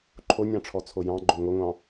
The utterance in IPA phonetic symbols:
ǃʰonʲɑ̃ ʈ͡ʂʰɔt͡sʰojɑ̃ɡ͡ǃo ŋʷeŋʷɑ̃

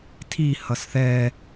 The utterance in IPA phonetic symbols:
tʰi hʌsθɛː

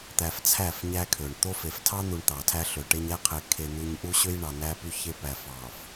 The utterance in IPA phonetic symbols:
t̪æ˨ft͡sʰæ˦˨f ɲæ˦kʰø˨ɳ t̪o˦fe˨f tʰɑ˦n̪u˨ɳ t̪ɑ˨tʰæ˦ ɬø˨ʈe˦ɲ æ˦qʰe˨ kʰe˨n̪u˨ɲ ʔu˦ɕø˦jɳɑ˨ næ˦py˦çe˦ pæ˨fɑ˨f

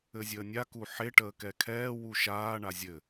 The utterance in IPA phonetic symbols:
ɘzʲəːnʲa kuħe ʈəːkɛkʰɛː wuʃaː ɳazʲɘ

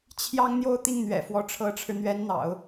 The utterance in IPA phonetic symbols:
t͡ɕʰjɑ˥ŋ n̪jo˥˧ʊ̯t̪i˥˩ŋn̪ɥɛ̰˨˩ fwɔ˧˥ ʈ͡ʂʰɤ˧˥ʈ͡ʂʰɻ̩˧n̪ɥɛ˧˥n n̪ɑ̰˨˩˦ʊ̯

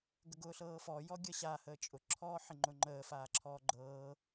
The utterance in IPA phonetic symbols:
ɡəɡʊːɬɤːfɔ jɔɡʲəɕa həːt͡ʃʼʊ ǁʰɔːħɪŋ͡ǃʊŋ͡ǃəː faːǁʰɔːɡ͡ǃɤː

